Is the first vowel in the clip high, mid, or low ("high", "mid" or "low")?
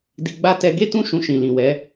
high